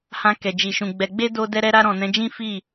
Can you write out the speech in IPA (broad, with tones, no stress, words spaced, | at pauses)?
hã˧kɛ˨ d͡ʒi˨ʃũ˨ ɡ͡bɛ˧ ɡ͡be˦ do˧ dɛ˧ɾɛ˧ ɾa˧ɾɔ̃˨ nɛ̃˨˦d͡ʒĩ˦ fi˦˨